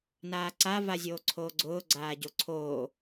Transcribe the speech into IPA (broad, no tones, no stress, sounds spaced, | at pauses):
n aː ǀ a v a zʲ oː ǀʰ oː ɡ͡ǀ ʊː ɡ͡ǀ aː ɟ o ǀʰ oː